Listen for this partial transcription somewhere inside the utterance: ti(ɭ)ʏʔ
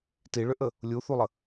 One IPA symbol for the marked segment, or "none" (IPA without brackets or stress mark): ɭ